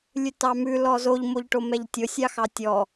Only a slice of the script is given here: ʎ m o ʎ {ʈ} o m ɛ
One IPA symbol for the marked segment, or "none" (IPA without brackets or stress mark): ʈ